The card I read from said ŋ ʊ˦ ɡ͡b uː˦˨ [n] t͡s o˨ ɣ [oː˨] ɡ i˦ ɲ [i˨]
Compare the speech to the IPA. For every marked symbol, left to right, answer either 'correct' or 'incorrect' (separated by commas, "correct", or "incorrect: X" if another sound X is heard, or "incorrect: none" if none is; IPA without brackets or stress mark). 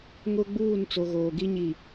correct, correct, correct